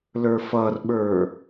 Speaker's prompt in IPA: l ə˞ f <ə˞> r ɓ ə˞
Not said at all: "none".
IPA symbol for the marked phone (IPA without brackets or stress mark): ʌ